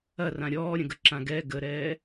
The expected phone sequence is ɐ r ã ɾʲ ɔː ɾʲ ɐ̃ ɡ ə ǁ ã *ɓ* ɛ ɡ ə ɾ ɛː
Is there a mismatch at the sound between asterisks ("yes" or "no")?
yes